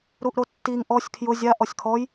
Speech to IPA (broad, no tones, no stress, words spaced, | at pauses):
ɾuʔɾotːiŋ ʔɔsʲ kʰjʊ zʲa ʔɔsʲkʰɔj